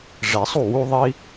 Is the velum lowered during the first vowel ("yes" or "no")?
no